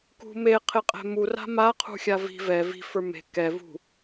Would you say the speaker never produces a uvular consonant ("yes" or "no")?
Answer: no